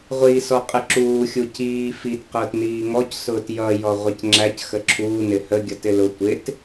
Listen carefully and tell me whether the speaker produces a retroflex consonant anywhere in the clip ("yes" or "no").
no